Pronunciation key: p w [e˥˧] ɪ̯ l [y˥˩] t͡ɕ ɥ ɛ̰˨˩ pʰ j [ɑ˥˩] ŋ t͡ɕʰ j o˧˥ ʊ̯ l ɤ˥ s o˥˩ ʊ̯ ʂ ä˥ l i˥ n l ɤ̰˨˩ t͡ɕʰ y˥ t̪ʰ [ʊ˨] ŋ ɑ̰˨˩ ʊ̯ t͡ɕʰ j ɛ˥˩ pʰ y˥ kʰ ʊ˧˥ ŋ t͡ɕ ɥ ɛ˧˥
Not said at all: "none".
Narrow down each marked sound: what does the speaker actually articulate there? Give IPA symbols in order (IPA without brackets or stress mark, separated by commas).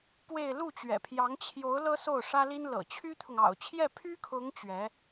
e˥˧, u˥˩, ɑ˧˥, ʊ˨